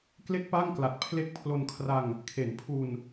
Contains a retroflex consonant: no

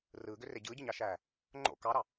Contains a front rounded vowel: yes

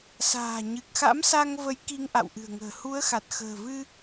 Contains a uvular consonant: no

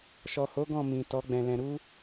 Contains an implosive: no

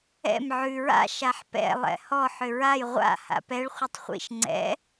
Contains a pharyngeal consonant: yes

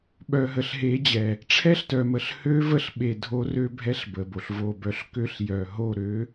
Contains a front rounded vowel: yes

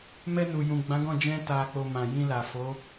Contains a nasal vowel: yes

